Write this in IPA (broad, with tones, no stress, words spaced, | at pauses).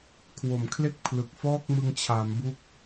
kʰwo˨˩mkʰle˥˩k̚ pʰlɯ˨˩k̚ fɔː˥˩k̚mɯ˧ŋt͡ɕʰaː˩˦mbu˦˥k̚